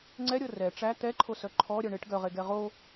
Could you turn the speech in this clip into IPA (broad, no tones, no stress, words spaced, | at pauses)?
ŋ͡ǀɛɾʲɤ rɛ ʈ͡ʂæ t̪ɛǃʰosœ ǃʰɔɾʲœ ɳeʈ ɡœʁeɡɛ ʁo